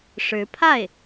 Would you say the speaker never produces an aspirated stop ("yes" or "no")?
no